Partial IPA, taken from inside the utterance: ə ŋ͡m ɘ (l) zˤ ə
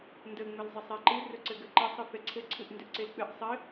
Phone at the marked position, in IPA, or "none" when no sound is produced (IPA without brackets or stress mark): l